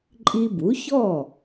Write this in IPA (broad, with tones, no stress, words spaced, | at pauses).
ǃʼi˧bu˩˥çɔ˥˩